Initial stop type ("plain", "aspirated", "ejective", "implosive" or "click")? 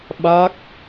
implosive